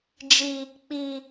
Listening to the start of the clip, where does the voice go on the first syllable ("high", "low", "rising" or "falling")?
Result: high